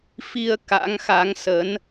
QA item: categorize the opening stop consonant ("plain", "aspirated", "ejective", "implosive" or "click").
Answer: plain